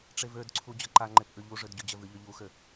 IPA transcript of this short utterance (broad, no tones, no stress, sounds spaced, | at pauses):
ʈ͡ʂ e v ø d ǀʰ u d͡ʑ ʌ ǃ a ŋ͡ǃ e p ʔ ʉ ʎ u ʐ ø d ɟ ʉ d͡ʑ ɛ v ɨ ʎ ø ʎ u x ø